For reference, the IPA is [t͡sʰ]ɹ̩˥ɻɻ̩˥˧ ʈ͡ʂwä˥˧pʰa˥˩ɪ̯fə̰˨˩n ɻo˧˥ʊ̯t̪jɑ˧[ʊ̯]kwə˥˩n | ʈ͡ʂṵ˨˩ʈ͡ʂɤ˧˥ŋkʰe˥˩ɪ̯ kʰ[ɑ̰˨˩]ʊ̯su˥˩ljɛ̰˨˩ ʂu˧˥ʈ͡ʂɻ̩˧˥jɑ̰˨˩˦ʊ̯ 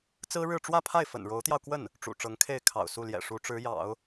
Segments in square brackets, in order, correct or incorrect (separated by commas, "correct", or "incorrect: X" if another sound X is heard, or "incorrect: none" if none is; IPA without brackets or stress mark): incorrect: t͡s, correct, correct